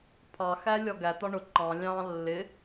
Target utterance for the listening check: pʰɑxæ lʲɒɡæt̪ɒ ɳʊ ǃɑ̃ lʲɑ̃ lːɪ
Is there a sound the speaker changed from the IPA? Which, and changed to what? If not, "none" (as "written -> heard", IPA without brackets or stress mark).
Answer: none